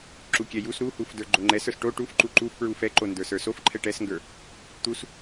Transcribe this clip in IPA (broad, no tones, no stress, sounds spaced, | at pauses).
ǁ u kʲ ɛ j u s ɾ u h u f d ə˞ ɡ͡ǃ o ŋ͡ǃ ɛ s ə˞ s ʈ o ʈ u f ǃ u ǃ u f p ɹ u f ɛ ǃ o n d ə˞ s ə˞ s o f ǃʰ ɛ ʈ ɛ s ŋ ɡ ə˞ | t̪ u s